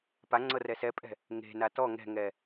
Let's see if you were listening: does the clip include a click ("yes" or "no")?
yes